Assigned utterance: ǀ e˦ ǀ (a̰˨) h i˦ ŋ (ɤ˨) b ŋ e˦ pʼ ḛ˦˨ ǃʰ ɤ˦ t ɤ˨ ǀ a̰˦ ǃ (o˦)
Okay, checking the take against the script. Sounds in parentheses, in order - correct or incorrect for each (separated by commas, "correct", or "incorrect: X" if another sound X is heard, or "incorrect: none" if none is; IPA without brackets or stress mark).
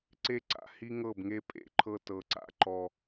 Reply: correct, incorrect: ɤ˦˨, incorrect: ɔ˦